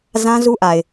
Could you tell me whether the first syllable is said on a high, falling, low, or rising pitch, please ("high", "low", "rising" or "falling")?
high